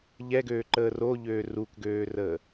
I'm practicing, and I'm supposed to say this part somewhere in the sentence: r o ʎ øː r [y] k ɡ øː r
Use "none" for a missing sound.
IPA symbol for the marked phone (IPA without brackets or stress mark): u